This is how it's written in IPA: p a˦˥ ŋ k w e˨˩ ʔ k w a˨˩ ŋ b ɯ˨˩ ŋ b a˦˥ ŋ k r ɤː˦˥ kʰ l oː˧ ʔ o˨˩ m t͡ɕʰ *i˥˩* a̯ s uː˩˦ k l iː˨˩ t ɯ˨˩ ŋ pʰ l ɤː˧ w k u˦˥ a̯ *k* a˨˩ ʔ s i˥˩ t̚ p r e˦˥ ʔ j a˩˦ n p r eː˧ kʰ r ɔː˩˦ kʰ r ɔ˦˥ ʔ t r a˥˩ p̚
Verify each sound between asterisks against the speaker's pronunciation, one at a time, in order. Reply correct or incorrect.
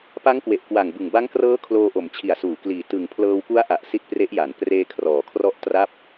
incorrect: i˨˩, incorrect: ʔ

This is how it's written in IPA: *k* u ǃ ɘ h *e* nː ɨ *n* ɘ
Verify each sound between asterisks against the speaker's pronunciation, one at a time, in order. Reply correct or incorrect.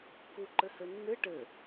correct, incorrect: ɘ, incorrect: ʈ

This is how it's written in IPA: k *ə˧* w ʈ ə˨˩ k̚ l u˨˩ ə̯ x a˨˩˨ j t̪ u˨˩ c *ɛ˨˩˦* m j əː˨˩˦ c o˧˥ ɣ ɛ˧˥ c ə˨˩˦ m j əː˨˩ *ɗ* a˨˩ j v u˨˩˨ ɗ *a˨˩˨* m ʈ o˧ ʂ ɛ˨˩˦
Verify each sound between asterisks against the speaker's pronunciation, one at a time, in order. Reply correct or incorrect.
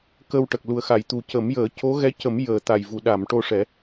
correct, incorrect: ə˨˩˦, incorrect: t̪, correct

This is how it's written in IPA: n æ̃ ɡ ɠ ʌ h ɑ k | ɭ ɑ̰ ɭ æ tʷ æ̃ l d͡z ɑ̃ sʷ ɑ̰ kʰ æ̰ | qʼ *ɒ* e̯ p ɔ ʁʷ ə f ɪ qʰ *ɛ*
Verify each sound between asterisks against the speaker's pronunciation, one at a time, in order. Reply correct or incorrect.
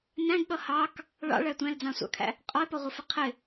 correct, incorrect: ɪ

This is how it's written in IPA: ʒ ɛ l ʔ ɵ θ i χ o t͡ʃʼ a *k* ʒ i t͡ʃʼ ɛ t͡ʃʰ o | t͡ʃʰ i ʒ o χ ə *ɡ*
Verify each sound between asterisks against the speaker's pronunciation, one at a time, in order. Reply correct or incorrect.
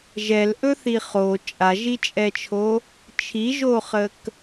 incorrect: none, incorrect: k

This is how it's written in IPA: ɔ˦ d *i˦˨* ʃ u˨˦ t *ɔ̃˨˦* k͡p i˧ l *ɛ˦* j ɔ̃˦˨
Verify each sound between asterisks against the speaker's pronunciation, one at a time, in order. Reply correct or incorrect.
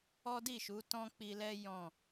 correct, incorrect: ɔ̃˦, correct

